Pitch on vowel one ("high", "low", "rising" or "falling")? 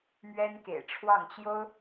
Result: high